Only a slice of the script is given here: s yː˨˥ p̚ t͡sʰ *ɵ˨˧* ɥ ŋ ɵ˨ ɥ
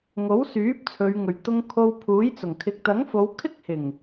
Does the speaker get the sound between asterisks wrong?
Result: no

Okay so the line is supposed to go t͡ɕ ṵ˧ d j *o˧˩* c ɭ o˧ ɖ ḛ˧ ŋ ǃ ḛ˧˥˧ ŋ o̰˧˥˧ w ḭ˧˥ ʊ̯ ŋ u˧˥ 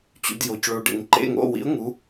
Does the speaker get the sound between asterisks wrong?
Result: no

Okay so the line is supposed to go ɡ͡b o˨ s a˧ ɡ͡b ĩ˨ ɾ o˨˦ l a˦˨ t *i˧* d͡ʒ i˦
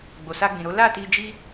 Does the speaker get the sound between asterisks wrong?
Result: no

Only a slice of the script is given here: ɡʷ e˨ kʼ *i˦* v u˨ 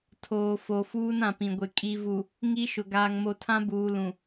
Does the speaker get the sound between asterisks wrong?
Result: yes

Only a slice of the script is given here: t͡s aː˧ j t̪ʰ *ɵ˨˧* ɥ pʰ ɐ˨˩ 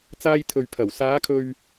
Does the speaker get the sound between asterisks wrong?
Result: yes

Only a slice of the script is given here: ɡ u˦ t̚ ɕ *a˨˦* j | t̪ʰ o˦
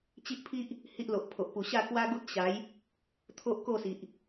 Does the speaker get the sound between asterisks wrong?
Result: no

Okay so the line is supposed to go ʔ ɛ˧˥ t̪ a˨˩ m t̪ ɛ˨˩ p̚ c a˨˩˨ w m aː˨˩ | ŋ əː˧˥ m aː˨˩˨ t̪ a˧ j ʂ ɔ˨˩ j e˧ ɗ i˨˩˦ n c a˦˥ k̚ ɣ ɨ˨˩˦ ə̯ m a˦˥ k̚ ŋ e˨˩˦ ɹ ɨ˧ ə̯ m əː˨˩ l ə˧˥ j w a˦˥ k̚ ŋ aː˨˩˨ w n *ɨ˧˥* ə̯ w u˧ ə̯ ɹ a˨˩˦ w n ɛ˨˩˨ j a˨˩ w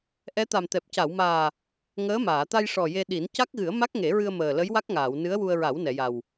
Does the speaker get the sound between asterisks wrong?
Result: no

